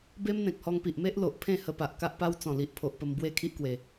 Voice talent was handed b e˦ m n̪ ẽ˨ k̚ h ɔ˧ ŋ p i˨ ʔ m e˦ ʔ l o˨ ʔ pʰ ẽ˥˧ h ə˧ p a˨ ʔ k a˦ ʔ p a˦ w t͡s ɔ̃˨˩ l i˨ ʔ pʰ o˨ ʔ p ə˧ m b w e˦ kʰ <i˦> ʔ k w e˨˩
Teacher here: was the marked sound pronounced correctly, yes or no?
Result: yes